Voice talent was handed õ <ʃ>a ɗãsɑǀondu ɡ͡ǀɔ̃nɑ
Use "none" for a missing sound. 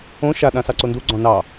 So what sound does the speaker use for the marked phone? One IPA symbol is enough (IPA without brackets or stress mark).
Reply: ʃ